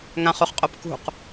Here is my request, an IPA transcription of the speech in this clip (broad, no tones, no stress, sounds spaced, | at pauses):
ŋ ã χ u χ qʼ o p k ṳ q